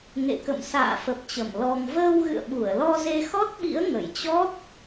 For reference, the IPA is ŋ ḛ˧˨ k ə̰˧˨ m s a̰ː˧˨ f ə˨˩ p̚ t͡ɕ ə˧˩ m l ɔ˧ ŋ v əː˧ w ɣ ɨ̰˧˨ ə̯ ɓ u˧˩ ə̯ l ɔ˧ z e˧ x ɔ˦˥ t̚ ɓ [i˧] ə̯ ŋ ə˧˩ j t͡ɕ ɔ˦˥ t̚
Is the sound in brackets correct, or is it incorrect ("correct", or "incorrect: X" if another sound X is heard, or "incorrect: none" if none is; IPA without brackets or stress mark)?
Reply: incorrect: ḭ˧˥